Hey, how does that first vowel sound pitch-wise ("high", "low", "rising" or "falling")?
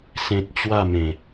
high